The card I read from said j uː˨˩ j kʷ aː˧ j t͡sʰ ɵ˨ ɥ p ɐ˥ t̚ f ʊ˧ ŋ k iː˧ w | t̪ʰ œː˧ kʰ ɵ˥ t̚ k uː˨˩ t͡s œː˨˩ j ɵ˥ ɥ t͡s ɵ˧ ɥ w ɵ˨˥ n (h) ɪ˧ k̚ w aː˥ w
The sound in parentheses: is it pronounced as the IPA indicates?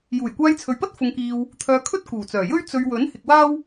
yes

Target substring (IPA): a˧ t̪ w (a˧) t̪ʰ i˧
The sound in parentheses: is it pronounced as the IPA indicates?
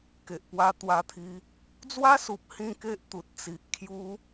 yes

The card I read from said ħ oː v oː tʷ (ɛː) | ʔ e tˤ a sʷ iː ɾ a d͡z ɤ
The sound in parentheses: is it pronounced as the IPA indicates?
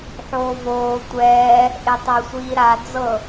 yes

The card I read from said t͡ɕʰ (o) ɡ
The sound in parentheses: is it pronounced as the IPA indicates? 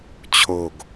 yes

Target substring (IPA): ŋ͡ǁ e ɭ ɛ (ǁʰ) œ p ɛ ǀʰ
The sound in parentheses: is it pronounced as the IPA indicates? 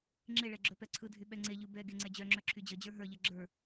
no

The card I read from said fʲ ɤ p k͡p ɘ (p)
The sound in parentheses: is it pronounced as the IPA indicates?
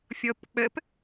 yes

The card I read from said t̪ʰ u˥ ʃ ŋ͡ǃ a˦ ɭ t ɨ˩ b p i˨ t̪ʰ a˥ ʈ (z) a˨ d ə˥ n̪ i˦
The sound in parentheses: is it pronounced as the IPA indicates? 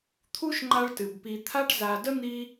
yes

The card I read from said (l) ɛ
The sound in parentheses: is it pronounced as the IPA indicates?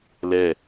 yes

